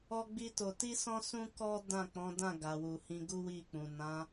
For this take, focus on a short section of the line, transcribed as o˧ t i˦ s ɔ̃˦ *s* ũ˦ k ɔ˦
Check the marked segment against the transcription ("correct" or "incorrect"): correct